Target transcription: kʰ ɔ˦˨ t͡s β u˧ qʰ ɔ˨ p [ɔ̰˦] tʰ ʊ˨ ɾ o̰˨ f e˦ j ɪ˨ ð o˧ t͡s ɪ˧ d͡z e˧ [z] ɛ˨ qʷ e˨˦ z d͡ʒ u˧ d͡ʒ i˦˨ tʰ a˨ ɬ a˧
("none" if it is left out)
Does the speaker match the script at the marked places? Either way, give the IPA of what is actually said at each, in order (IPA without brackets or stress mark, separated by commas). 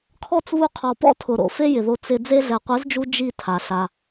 ɔ̰˦, ɮ